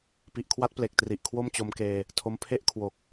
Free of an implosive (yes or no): yes